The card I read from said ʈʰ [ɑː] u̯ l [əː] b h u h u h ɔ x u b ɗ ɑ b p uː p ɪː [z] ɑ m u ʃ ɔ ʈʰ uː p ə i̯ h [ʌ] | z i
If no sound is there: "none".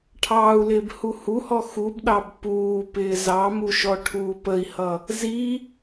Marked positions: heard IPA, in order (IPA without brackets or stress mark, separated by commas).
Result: ɑː, ɪː, z, ʌ